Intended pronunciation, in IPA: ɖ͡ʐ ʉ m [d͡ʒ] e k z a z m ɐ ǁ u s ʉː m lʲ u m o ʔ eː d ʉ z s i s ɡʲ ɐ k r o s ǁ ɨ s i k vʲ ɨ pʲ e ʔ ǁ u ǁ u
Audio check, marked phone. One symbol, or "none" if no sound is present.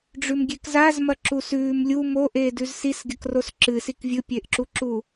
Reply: ɡʲ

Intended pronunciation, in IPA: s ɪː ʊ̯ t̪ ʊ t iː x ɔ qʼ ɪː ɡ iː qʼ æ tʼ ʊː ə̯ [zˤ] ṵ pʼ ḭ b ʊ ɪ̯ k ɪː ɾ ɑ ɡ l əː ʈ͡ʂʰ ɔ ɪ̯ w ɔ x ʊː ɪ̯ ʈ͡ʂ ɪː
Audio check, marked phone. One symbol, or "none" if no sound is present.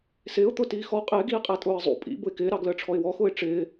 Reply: zˤ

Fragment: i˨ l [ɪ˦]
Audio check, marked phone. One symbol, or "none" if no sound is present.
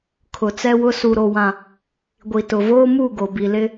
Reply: ɪ˦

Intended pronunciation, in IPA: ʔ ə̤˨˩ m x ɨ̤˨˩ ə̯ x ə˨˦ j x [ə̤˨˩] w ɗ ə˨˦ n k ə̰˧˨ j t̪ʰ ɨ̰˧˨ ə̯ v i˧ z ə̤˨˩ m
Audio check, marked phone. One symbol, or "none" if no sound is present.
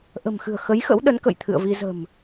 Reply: ə̰˧˥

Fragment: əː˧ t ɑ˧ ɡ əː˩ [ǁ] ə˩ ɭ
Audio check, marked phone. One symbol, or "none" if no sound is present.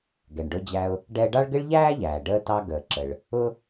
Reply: ǁ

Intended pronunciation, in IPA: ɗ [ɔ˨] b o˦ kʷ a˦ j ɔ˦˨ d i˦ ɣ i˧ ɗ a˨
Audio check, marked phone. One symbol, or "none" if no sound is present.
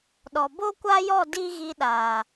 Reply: ɔ˨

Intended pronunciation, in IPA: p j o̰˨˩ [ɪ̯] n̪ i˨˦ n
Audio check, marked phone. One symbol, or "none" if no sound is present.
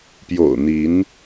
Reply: ʊ̯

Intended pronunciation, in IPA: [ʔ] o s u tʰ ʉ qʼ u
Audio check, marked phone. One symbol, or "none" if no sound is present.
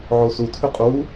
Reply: ʕ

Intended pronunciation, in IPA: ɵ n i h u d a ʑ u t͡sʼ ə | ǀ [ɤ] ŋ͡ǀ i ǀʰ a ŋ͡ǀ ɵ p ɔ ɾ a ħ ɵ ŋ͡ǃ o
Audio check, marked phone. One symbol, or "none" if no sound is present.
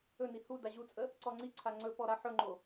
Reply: ɔ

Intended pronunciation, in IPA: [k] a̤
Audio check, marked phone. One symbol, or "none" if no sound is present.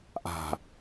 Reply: ʔ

